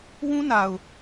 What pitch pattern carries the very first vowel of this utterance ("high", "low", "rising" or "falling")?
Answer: high